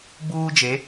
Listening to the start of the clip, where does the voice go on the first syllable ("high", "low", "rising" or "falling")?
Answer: high